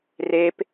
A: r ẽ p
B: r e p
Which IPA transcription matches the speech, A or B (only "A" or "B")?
B